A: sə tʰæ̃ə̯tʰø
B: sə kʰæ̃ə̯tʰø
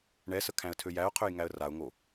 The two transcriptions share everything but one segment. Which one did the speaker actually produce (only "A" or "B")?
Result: B